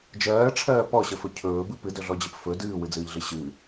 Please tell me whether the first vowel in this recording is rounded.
no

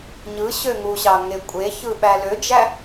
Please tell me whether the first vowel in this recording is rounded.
no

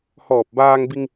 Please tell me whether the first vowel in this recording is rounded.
yes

